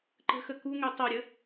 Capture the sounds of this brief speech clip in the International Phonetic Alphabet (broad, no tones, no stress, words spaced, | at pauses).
ǃə̤xə kuŋø tˤœɾʲə